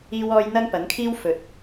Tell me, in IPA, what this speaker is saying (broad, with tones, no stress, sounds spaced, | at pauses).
iː˥ w ɔː˥ j n̪ ɐ˥ ŋ p ɐ˨˥ n kʰ iː˥ w f ɵ˨˥ t̚